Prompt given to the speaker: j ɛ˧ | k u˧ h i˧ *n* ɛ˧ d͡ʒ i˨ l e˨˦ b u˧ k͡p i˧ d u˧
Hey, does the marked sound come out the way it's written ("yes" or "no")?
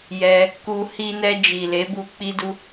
yes